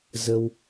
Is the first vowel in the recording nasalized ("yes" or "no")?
no